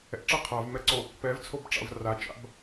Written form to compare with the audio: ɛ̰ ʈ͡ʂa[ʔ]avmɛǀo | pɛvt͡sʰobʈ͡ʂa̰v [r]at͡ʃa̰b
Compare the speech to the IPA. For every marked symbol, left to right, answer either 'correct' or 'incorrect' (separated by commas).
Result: incorrect, correct